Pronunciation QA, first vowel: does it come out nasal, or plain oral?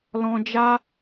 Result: nasal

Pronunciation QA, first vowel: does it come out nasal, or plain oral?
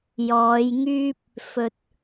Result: oral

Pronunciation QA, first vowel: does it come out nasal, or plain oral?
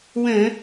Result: nasal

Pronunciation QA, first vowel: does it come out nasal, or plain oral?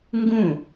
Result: nasal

